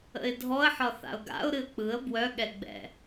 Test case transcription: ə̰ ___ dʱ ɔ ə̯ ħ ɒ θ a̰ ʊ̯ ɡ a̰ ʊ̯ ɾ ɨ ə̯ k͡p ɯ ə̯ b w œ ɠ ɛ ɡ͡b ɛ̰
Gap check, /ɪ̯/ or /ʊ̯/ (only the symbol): ɪ̯